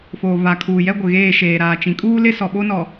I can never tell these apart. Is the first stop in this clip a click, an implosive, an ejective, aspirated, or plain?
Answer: aspirated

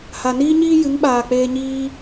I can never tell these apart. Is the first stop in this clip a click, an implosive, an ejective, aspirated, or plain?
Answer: implosive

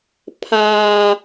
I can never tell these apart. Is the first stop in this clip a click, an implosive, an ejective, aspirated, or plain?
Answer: aspirated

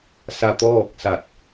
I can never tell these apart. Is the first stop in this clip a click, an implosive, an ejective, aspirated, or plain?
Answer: plain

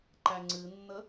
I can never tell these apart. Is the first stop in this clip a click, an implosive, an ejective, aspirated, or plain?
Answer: click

